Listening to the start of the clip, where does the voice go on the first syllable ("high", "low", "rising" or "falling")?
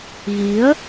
rising